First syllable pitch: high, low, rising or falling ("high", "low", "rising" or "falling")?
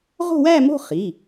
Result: falling